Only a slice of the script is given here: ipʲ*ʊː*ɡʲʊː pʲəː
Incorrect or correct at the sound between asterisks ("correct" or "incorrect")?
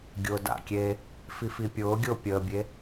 correct